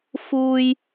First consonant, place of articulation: labial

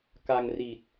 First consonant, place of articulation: velar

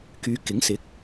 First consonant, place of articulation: velar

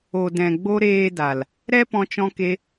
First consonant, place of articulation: alveolar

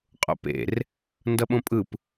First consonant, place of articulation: uvular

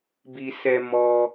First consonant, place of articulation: labial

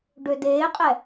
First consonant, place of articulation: retroflex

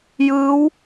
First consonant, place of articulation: palatal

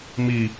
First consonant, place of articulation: labial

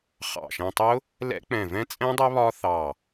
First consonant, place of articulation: uvular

